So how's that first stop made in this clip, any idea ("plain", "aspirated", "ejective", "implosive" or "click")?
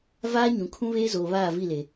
aspirated